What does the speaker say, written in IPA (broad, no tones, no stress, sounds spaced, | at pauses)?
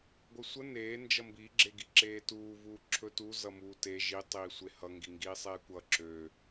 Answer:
ɡʷ ə sʷ ə n eː n d͡ʒ ʌ m b i ɡ͡ǁ e ɡ i ǁ eː t uː v uː ǁʰ ɵ t u z ʌ m uː t e ʒ i tˤ iː sʷ e h ʌ ŋ ɡ i ŋ ɡ iː sˤ eː kʷ ʌ ǁ ø